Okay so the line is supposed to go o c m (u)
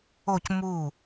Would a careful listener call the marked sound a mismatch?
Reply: no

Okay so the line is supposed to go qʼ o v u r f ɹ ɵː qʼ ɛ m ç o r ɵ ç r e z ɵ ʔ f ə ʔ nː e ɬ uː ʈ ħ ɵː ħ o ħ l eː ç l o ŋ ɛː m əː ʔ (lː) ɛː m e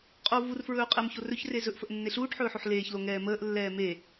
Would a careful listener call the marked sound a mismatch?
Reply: no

